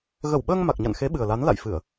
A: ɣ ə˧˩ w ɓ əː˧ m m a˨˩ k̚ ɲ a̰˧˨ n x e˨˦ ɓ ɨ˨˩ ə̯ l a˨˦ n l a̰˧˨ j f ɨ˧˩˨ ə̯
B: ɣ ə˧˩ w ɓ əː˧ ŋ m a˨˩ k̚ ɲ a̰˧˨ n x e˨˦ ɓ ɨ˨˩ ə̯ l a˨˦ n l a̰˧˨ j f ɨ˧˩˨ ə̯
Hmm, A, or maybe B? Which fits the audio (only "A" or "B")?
B